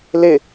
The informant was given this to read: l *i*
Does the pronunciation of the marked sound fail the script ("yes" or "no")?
yes